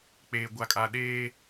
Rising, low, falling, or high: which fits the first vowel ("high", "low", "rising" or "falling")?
low